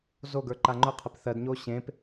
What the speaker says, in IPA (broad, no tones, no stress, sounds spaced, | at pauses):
z o ɡ ə˞ ǃ a ŋ͡ǃ ʊ qʰ e p θ ɜ d ɲ o ɕ ẽ p